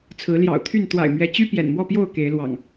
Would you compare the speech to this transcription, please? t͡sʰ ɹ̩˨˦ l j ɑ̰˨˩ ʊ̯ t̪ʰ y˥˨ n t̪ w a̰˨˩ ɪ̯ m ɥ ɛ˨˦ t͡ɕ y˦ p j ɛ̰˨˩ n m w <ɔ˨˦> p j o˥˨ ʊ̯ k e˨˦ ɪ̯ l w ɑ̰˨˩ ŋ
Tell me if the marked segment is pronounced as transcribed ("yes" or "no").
no